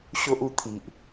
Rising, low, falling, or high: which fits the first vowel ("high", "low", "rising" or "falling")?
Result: high